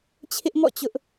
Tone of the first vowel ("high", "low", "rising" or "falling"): high